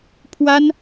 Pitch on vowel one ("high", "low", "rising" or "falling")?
high